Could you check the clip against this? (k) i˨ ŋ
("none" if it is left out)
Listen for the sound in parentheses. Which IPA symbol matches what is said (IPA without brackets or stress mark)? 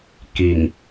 k